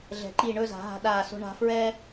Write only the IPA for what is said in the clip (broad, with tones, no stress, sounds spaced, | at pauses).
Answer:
ɮ ɛ̤˩˧ ǃ i˧˩ ɳ ɵ˥˧ z a̤˩˧ ɦ a̤˧ ɗ aː˧˩ s o̤˧ ɳ a̤˧ f ɹ ɛː˥